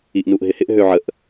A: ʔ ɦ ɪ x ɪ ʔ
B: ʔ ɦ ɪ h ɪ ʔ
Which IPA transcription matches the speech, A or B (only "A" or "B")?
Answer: B